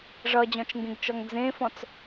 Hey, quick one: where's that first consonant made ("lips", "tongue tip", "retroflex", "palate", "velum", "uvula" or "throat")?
retroflex